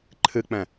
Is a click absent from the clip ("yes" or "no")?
no